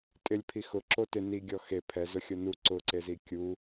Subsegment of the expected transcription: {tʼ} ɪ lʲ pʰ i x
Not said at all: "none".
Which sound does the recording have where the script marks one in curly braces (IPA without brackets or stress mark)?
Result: tʼ